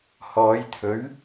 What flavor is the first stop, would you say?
aspirated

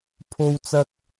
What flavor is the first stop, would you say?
aspirated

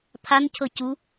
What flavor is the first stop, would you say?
aspirated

